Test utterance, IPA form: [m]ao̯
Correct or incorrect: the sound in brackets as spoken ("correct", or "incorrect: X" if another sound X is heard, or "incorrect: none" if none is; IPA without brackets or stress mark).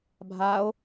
incorrect: bʱ